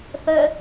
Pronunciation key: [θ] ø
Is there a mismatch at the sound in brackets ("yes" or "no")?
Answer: no